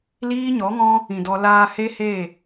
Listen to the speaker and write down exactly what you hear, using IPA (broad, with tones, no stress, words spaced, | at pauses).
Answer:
liː˦ɲɔ˨˦ŋɔ̃˦ | ĩ˨dɔ˧ laː˧he˦he˦˨